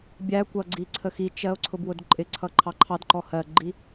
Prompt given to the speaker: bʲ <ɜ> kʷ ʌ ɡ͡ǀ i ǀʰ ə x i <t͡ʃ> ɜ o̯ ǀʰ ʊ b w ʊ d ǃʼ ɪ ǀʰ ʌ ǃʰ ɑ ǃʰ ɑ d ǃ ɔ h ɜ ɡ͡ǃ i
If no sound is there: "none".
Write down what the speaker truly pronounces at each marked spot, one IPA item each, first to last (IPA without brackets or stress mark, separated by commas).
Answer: æ, t͡ʃ